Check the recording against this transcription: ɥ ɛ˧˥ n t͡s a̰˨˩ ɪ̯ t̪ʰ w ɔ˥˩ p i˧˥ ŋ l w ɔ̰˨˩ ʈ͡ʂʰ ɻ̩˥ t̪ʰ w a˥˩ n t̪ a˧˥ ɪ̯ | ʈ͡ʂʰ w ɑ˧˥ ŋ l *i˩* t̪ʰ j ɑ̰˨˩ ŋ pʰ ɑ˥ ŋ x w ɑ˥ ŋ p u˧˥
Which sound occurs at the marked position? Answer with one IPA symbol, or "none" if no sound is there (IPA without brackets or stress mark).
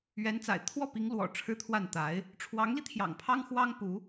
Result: i˧